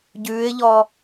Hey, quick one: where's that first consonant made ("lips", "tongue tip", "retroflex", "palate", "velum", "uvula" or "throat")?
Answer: palate